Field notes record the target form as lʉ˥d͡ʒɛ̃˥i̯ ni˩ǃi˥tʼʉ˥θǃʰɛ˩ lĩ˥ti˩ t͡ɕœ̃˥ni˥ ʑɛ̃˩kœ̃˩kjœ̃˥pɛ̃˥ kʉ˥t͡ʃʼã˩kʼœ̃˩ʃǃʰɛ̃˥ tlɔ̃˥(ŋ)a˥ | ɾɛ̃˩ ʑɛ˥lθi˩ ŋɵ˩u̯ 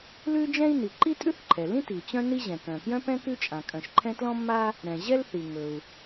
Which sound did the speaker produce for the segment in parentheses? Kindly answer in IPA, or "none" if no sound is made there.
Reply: mː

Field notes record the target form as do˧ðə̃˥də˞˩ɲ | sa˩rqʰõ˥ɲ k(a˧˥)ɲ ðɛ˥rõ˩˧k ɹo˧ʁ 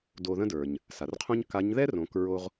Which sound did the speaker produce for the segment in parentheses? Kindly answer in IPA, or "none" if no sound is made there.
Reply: a˧˥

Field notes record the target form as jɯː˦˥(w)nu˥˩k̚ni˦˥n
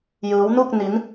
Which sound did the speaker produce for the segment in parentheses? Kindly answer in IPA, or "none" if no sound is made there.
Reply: w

